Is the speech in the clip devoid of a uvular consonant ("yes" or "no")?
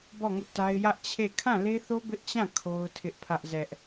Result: yes